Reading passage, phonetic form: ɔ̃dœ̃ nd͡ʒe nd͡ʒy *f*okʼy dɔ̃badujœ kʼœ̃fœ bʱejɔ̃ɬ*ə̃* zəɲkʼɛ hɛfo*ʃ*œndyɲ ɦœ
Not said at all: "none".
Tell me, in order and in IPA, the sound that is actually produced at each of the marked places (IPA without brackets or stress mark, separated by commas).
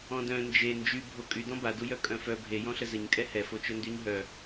bʱ, ə, t͡ʃ